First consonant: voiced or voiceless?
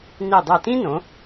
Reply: voiced